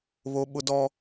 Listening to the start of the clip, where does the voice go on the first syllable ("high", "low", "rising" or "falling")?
high